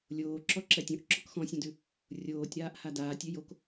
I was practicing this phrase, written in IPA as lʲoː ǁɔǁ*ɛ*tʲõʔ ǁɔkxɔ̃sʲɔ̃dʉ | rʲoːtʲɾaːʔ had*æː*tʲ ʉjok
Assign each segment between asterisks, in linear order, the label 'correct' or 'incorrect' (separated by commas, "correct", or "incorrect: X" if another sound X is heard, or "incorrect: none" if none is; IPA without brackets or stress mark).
correct, incorrect: aː